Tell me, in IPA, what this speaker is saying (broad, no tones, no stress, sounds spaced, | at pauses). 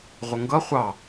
ʁʷ ə ŋ ɡ ʌ χʷ ɑ